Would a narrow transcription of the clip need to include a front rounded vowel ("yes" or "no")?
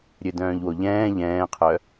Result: yes